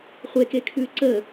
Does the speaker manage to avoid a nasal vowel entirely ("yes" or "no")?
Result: yes